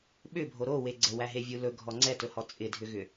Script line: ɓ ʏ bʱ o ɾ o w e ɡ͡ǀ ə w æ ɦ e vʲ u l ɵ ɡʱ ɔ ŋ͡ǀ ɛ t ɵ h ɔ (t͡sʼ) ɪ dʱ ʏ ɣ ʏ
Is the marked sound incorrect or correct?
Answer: correct